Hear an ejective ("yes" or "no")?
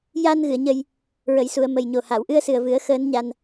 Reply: no